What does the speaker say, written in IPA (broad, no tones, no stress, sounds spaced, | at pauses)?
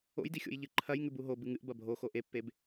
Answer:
o̰ j d i xʲ o̰ j ʎ ɨ ǃʰ ɐ j ŋ ʉ b u ɦ o b ɨ ŋ ɨ ʔ b ɐ bʱ o x o ʔ e pː e b